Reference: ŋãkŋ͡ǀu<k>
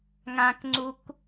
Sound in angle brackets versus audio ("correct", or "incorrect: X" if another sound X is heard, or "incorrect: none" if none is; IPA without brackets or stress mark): correct